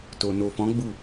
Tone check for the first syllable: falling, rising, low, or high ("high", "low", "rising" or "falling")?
low